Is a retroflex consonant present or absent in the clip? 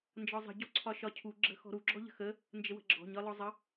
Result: absent